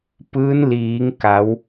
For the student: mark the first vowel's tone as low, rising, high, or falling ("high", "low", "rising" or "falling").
rising